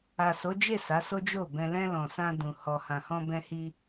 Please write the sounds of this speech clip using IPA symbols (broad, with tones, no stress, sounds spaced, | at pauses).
a˨ s o˨˦ d͡ʒ e˦˨ s a˨˦ s o˦ d͡ʒ o˦˨ b ɛ̃˧ l ɛ̃˧ l ɔ̃˨ s ã˧ d ũ˨ h ɔ˨ h ã˨ h ɔ̃˧ b ɛ̃˧ h i˧